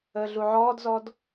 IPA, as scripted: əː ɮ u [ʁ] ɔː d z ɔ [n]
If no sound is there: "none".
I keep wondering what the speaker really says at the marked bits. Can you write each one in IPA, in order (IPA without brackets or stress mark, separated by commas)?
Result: ʕ, d